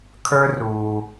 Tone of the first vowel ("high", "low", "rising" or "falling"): high